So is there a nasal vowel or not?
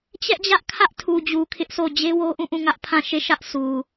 yes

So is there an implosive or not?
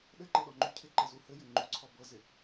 yes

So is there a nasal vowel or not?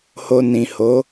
yes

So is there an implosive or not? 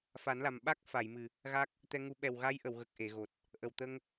yes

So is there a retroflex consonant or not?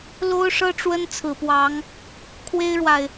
yes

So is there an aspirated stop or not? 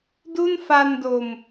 no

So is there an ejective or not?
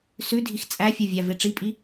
yes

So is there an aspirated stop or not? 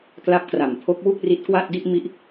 yes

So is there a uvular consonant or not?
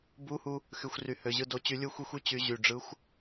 no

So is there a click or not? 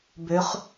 no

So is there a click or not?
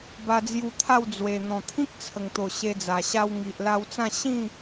no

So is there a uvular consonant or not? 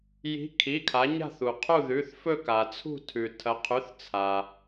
yes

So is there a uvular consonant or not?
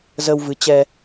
no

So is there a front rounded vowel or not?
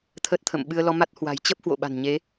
no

